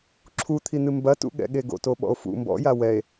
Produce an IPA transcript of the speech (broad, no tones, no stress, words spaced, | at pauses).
ǁʰut̪ʰin̪ɨ mbɐtṵɠɛ̰ɠe ɡo̰toɓɔ̰o̯ fṵ mbɔ̰ja wɛe̯